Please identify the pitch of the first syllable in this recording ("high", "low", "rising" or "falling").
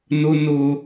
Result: high